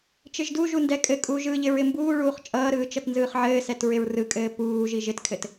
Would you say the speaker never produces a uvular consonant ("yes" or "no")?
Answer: no